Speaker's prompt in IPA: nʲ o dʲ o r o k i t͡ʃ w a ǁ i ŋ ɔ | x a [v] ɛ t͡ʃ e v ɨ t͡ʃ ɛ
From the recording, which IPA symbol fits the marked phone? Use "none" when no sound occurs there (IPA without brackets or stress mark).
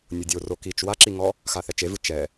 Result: θ